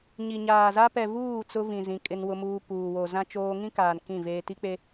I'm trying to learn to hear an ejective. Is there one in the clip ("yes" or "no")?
yes